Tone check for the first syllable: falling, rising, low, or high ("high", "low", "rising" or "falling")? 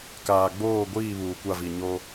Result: low